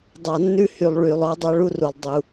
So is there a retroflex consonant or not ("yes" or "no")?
yes